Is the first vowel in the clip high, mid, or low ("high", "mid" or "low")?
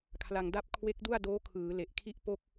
low